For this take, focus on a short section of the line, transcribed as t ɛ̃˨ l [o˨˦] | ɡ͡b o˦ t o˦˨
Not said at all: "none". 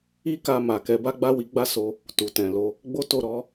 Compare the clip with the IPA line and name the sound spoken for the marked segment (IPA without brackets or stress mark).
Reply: o˨˦